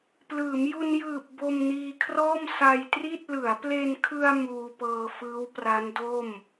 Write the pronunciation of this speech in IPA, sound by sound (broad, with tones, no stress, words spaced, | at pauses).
plɯː˩˦mju˧njɯː˨˩p̚ bo˧mniː˧kʰrɔː˥˩m sa˧jtri˥˩t̚ lɯ˩˦a̯ple˧nkʰɯ˧a̯ muː˧pɤː˧ fɯː˦˥wpra˦˥ndo˥˩m